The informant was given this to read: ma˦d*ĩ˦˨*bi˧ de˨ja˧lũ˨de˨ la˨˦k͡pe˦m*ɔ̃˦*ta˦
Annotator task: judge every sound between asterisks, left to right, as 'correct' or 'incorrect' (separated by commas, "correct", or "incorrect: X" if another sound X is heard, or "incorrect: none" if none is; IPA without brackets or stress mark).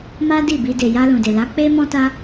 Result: incorrect: i˦˨, correct